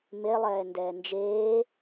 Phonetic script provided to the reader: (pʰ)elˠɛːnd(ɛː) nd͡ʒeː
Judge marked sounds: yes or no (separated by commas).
no, yes